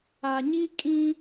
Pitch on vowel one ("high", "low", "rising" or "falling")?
low